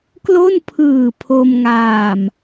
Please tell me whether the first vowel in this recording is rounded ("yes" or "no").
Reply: yes